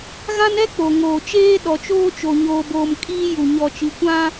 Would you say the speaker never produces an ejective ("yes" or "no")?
no